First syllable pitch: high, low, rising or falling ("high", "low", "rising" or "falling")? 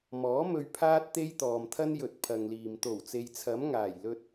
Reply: rising